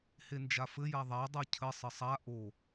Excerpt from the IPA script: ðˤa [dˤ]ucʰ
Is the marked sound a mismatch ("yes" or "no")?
no